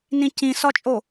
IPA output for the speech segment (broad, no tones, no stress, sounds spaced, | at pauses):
n ĩ c ĩ s ɒ t͡ʃʼ o